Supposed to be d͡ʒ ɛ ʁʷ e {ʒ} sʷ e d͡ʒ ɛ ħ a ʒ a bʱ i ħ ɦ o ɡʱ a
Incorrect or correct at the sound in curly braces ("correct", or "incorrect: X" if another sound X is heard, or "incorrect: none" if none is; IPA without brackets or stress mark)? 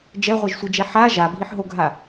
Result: correct